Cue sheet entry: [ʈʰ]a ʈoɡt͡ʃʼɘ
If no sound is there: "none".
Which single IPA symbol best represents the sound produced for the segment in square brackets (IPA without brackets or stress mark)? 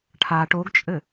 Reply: ʈʰ